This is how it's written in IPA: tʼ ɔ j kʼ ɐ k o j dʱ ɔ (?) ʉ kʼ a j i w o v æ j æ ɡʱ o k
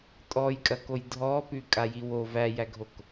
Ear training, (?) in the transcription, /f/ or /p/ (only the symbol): p